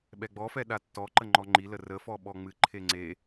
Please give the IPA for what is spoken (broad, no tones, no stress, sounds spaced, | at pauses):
ɓ ɛ ɡ͡b ɔ f ɛ ɗ a tː ɔ ǃ ə ŋ͡ǃ ɔ ŋ͡ǃ i l ə r ə f ɔ ɓ ɔ ŋ͡m ɨ ǃʰ e ŋ͡ǀ e